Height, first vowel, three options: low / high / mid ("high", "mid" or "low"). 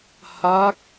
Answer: low